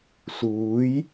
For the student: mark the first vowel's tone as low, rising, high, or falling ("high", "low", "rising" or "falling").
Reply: rising